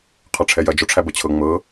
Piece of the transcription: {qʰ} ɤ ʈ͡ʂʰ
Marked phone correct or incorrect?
correct